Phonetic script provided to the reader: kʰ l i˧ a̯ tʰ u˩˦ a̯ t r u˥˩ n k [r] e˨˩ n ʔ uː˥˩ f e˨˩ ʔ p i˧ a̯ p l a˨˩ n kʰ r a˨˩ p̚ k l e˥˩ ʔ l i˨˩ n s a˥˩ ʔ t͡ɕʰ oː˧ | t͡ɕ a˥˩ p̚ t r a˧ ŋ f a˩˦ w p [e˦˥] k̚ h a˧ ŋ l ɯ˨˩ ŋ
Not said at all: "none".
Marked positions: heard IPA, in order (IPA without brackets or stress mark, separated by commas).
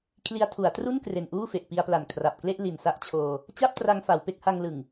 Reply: r, e˦˥